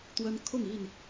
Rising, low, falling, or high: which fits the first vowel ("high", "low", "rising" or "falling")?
high